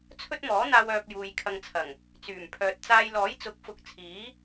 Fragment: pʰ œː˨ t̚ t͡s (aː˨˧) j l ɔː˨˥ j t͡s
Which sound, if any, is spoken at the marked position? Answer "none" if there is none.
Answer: aː˧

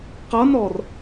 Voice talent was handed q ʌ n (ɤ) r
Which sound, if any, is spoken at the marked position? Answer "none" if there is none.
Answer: ɔ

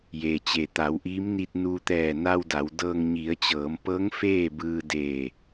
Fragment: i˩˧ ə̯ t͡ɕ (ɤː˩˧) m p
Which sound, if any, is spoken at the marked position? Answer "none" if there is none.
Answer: ɤː˩˧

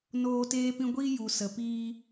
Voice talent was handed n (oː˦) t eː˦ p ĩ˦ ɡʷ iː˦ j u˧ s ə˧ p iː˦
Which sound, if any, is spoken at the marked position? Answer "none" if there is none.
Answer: oː˦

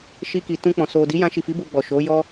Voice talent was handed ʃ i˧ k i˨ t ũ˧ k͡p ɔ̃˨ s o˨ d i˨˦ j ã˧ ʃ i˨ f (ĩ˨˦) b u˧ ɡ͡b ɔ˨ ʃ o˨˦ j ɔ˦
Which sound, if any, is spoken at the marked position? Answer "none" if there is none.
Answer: i˨˦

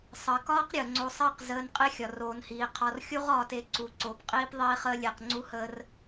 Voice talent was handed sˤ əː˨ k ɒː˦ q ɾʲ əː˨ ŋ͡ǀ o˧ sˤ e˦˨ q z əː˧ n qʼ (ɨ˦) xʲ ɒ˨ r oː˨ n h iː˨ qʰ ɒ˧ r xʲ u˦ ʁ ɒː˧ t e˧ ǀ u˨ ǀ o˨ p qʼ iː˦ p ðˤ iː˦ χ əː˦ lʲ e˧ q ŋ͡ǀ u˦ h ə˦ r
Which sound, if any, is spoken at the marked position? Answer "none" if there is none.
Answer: e˦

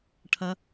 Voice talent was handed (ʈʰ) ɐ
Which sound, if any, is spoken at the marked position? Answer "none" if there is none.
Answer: ʈʰ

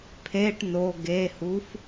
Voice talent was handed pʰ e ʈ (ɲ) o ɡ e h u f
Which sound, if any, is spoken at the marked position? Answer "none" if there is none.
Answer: n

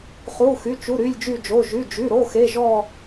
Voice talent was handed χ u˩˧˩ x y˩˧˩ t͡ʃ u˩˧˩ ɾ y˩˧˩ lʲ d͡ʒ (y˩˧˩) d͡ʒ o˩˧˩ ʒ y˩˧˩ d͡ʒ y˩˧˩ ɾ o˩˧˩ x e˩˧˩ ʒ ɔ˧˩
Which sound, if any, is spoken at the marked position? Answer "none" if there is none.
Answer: y˧˩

